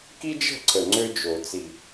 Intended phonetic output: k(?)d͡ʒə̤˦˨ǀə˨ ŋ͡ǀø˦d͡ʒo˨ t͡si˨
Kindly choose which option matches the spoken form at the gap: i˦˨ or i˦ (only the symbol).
i˦